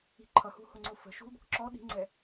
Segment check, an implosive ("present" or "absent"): present